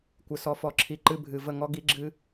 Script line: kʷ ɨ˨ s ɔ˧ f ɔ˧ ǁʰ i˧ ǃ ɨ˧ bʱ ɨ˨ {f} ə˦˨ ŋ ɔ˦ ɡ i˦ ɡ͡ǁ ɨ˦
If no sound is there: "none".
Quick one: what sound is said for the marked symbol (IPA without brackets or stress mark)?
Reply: v